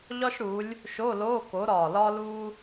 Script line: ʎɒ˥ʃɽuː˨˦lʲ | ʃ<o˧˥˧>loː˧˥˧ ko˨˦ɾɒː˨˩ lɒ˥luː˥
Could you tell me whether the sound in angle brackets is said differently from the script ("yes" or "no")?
no